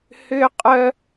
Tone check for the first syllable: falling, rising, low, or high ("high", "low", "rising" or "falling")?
high